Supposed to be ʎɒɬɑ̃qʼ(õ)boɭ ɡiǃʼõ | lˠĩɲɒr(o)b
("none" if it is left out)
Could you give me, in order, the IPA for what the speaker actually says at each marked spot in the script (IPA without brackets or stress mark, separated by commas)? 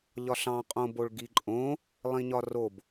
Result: õ, o